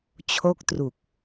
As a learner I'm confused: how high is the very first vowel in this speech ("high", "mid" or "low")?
mid